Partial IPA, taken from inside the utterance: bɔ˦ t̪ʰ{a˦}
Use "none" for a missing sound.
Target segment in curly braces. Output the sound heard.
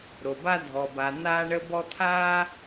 aː˦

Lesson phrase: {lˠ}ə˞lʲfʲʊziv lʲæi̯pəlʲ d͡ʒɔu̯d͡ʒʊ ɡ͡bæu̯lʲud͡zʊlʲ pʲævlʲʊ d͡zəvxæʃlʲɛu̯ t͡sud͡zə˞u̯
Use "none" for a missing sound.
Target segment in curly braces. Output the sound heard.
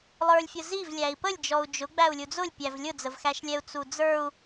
lˠ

